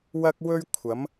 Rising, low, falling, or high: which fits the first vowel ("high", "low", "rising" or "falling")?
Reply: high